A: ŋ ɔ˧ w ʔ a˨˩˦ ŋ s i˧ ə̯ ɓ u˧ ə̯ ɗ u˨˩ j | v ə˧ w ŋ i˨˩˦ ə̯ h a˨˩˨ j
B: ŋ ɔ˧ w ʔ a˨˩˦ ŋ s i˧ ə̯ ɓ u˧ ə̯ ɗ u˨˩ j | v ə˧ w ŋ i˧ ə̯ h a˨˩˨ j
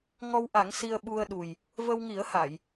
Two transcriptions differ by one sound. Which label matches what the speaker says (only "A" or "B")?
A